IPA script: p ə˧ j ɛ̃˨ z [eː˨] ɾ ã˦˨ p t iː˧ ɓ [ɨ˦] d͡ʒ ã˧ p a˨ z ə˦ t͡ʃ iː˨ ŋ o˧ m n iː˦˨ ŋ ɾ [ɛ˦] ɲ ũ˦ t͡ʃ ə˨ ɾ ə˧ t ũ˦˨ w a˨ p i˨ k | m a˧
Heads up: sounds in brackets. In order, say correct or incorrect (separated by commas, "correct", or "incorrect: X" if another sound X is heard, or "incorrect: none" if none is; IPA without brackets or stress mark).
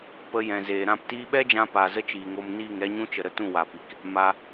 correct, incorrect: ɛ˦, correct